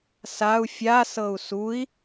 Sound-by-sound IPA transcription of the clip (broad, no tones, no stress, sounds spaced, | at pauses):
s a u̯ fʲ a s ɤ u̯ s u i̯